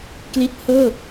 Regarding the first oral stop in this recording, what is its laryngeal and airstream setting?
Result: plain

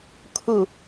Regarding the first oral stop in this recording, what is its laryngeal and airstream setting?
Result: aspirated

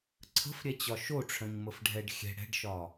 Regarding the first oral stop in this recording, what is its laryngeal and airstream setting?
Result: click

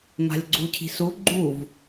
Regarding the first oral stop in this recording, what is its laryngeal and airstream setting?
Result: click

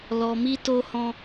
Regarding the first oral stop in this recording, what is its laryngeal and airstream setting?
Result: plain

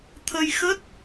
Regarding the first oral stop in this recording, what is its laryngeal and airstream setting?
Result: aspirated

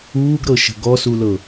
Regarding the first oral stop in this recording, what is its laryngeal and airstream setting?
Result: plain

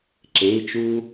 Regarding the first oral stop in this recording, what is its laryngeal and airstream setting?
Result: click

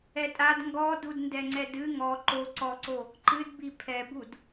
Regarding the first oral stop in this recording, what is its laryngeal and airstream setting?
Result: ejective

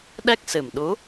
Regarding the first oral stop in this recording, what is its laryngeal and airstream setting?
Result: implosive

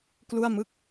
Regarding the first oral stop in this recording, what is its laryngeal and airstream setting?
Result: plain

